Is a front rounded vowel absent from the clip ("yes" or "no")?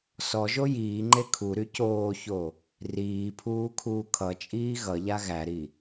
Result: no